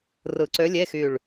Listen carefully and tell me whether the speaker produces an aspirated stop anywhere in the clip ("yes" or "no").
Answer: no